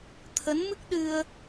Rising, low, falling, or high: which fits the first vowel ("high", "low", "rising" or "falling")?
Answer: rising